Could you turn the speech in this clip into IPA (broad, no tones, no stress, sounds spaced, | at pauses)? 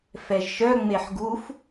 f ɛ ʒ ʃ œ ŋ͡m e ħ ɡ u f